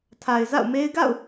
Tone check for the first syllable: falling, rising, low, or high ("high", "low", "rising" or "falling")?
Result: low